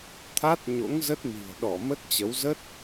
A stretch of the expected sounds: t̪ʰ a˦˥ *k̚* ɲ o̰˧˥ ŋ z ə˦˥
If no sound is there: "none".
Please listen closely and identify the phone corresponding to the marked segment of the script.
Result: t̚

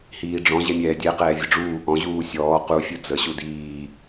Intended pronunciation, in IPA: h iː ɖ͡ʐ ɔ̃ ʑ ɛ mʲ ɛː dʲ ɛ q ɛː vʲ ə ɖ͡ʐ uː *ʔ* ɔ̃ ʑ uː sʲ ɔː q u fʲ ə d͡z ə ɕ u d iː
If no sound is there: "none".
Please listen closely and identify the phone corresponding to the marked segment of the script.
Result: ʔ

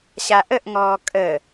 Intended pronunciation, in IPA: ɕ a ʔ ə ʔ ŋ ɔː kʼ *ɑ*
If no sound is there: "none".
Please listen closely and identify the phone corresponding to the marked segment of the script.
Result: ə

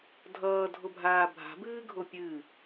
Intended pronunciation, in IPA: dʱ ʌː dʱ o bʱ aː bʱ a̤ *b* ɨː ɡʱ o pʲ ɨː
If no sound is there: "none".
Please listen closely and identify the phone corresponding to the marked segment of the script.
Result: b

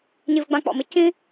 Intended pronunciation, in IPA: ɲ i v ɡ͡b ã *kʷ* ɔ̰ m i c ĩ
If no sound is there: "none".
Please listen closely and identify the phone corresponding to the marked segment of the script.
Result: k͡p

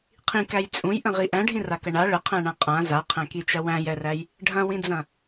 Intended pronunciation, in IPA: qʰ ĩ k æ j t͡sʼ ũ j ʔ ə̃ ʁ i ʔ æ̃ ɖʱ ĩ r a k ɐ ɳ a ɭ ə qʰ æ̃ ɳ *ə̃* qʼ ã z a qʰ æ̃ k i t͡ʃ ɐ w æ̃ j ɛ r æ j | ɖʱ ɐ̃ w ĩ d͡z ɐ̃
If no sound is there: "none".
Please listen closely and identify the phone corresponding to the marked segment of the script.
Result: ã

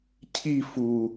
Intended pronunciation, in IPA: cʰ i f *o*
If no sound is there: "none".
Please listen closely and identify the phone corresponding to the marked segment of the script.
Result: u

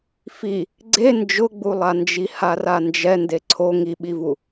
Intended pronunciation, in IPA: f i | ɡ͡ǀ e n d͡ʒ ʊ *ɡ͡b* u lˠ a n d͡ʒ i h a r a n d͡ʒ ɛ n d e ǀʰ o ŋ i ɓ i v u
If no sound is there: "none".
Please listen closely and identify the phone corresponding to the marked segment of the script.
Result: ɡ͡b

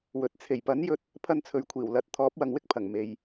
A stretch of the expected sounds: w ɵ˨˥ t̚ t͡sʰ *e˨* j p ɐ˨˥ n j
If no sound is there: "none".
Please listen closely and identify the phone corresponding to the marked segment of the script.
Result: e˨˩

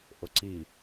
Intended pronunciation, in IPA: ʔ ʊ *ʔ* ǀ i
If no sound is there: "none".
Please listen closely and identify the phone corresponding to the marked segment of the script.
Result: none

